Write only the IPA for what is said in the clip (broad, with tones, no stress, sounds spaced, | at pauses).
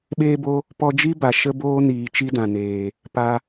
ɓ eː˦ b o˦ | p ɔ˦ d͡ʒ i˦ b a˨ ʃ ə˦ b oː˦ n iː˨ t͡ʃ i˦ d ã˨ n eː˨ | p a˦